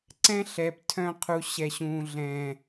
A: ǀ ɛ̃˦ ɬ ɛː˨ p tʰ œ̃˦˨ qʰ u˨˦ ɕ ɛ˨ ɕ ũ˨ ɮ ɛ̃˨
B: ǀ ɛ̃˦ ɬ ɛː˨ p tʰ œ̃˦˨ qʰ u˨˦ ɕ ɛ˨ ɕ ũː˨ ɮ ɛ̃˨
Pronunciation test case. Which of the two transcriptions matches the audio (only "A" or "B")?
B